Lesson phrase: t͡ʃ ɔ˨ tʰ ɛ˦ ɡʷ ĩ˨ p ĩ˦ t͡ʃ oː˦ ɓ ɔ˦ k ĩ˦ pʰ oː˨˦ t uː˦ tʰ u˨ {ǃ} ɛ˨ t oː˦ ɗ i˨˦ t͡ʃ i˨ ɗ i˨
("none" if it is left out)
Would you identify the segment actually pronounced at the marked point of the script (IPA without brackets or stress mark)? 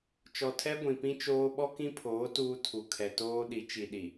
kʰ